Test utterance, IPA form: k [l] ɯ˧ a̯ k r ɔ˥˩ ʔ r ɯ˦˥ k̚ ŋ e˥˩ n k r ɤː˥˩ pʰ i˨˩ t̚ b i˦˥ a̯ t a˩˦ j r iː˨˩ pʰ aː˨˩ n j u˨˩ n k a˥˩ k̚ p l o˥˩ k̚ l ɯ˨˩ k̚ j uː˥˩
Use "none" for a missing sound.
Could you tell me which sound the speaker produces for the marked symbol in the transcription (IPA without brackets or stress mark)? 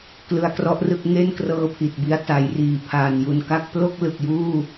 l